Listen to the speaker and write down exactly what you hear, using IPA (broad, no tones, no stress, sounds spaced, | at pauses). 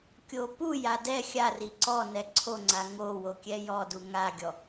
kʲ o p u j a d ɛ xʲ a r i ǀ ɔ n ɛ ǀʰ o ŋ͡ǀ a ŋ o w o kʲ ɛ j ɔ d u ŋ a ɡʲ ɔ